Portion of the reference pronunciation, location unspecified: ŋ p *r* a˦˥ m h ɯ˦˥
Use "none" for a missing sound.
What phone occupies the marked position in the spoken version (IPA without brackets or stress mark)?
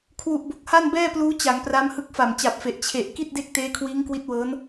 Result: r